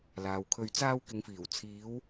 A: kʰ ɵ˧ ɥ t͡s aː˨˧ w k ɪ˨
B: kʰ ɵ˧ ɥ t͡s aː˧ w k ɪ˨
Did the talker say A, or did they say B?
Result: B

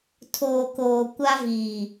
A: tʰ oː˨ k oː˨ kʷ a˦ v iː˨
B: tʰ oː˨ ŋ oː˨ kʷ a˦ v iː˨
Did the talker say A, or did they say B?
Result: A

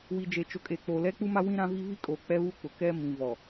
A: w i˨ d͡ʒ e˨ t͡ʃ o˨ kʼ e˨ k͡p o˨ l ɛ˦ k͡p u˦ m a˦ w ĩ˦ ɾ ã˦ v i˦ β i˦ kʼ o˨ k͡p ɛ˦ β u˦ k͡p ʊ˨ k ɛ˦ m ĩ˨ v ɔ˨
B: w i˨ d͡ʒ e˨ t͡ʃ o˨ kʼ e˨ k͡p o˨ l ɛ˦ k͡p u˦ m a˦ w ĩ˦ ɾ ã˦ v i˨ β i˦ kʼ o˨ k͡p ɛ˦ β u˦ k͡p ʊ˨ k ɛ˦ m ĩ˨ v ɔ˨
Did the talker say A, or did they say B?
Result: A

